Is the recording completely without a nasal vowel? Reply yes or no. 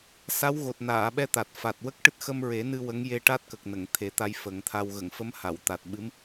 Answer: yes